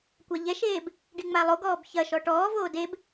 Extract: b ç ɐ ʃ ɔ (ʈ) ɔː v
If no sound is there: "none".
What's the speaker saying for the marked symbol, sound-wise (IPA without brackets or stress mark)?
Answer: ʈ